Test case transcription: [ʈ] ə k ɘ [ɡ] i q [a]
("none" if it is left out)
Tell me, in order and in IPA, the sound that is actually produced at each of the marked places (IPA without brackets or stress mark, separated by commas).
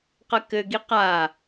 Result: q, ɡ, a